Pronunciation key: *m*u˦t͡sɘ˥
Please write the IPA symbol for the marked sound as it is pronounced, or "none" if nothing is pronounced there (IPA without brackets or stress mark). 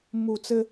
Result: m